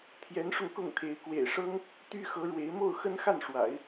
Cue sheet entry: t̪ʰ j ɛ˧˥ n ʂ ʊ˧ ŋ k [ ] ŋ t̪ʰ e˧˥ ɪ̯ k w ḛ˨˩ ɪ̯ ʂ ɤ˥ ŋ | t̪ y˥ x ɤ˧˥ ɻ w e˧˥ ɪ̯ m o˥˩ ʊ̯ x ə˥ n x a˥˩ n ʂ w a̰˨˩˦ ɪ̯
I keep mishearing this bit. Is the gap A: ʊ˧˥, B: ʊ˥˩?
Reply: B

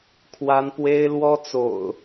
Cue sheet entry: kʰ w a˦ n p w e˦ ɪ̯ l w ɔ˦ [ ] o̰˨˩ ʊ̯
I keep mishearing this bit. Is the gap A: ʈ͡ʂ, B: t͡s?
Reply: B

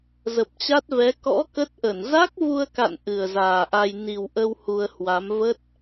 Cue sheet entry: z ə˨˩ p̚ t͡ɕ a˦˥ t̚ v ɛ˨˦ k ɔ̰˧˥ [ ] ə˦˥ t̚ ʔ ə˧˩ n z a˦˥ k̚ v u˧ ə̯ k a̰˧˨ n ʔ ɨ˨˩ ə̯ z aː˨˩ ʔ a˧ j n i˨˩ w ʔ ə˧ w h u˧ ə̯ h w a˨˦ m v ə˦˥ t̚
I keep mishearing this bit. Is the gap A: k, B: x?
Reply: A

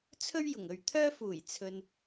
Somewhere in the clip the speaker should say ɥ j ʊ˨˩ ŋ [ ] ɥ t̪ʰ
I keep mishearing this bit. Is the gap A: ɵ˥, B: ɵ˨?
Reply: B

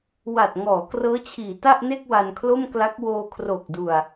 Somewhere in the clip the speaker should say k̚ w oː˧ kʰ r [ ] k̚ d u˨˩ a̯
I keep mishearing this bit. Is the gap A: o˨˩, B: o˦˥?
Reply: A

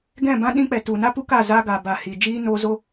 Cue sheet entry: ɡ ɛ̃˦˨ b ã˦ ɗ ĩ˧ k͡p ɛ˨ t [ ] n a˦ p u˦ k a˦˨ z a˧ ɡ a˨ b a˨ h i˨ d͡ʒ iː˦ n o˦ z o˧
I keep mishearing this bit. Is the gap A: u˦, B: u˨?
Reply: B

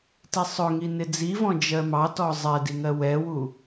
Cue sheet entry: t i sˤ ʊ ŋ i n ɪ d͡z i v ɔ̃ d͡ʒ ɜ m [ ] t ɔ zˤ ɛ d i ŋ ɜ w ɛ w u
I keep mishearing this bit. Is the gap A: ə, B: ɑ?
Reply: B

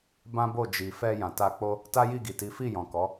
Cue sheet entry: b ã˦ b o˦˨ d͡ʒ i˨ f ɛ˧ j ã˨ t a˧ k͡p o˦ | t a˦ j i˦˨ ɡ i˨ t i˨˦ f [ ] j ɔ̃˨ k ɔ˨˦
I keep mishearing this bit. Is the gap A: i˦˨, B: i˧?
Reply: A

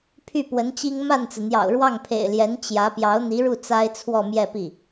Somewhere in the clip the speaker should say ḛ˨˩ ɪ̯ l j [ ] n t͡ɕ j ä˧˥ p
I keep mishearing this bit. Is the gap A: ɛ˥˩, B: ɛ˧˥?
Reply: B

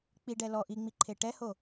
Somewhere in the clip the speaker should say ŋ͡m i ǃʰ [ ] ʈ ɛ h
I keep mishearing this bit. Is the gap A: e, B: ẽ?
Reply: A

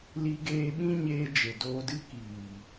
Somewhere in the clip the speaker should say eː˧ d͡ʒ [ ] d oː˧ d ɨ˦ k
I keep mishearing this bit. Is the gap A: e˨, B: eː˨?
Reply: A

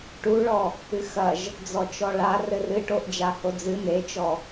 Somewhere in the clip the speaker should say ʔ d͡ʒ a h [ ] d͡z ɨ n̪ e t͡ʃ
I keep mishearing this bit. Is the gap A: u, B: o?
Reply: B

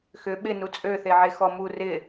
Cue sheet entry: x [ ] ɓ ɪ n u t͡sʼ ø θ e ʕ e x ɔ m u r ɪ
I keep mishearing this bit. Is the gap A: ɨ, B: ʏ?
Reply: B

